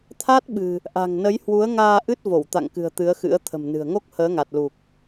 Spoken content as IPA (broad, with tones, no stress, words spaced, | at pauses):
t̪ʰa˦˥t̚ɓɨ̤˨˩ | ʔa̤˨˩ŋnə˨˦jhwu˨˦ə̯ ŋaː˧ʔɨ˦˥t̚ vo˧˩wt̪a̰˧˨ŋkɨ̤˨˩ə̯ t̪ɨ˨˦ə̯xɨ̰˧˥ə̯ t̪ʰə̤˨˩mnɨ̤˨˩ə̯ŋo˦˥k̚ həː˨˦ŋa˨˩t̚lu˨˩k̚